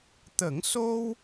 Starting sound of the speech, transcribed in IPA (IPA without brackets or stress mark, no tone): t̪